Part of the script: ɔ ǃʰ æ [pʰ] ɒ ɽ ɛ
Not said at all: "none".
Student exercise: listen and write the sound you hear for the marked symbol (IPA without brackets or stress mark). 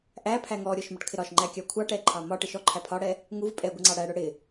pʰ